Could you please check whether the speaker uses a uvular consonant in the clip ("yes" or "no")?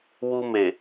no